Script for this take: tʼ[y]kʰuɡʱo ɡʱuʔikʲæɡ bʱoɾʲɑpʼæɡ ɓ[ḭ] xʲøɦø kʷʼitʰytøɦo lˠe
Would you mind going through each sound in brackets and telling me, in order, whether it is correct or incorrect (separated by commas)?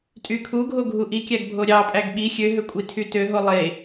correct, incorrect